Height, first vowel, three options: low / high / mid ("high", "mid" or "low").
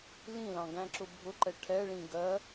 high